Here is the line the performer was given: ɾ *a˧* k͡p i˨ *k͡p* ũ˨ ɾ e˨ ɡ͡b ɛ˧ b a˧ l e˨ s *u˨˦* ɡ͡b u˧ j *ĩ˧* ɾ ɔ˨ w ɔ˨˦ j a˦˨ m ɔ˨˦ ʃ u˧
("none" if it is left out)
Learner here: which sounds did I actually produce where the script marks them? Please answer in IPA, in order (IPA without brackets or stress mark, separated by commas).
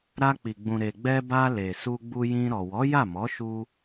a˧, ɡ͡b, u˧, ĩ˧